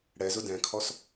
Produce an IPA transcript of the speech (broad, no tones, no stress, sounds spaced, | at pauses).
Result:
ɽ ɛ z ʊ d ɛ̃ kʰ ɔ s